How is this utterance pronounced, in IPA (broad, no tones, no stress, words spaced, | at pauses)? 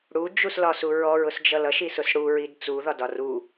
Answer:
ɽud͡ʒuslɒsu ɹɔɹʊsd͡ʒʌ lʌʃisʊs ɽuɹid t͡suðɒdɒ ru